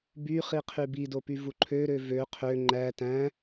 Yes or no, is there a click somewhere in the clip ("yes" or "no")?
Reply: yes